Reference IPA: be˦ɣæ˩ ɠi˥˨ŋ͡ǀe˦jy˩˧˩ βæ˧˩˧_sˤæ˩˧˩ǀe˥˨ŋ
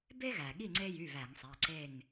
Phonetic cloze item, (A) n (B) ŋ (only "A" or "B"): B